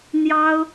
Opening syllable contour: high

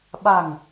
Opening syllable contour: low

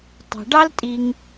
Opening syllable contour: low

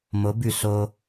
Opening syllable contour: rising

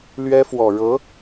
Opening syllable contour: high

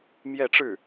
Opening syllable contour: falling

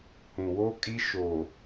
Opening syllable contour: low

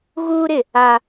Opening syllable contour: high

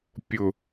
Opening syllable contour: low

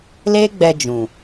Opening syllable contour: high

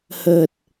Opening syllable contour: low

